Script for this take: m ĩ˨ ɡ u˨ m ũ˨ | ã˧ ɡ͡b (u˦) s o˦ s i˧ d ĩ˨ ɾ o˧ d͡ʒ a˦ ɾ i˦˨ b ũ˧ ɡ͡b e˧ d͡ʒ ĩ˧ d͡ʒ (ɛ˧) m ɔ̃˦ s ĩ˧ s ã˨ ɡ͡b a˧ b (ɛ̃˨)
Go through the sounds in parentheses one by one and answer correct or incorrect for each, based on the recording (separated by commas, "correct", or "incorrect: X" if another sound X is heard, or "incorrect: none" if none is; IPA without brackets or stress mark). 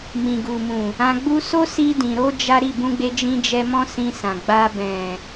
correct, correct, correct